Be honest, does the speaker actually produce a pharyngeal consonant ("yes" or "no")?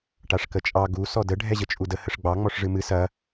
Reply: no